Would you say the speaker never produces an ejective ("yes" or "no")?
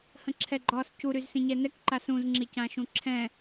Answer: yes